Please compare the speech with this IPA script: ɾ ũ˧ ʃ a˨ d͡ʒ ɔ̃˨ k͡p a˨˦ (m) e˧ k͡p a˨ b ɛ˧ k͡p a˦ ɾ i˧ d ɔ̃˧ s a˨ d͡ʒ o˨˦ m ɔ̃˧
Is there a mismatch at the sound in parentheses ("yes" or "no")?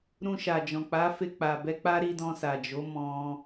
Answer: yes